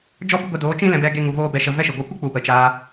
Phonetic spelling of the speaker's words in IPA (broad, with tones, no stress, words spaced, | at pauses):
d͡ʒɔ˦bɨ˦ɡʷe˧doː˨˦ t͡ʃĩ˦lɛ̃˧bɛ˧ ɡe˦ŋu˧voː˦ bɛ˧ʃə˧ vɛ˦ʃɨ˨ɡʷa˦ kʷɨ˦k͡pu˨ pə˨t͡ʃaː˧